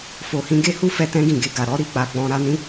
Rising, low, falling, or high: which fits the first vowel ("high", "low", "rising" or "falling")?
low